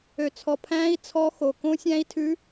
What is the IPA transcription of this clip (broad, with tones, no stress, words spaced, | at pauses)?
ø˨t͡sʰɔ˨pʰæ̃ː˦˥i̯ t͡sʰɔ˦˥xo˨ kõ˦˥sʲæ̃˦˥i̯ tʰʉ˦˥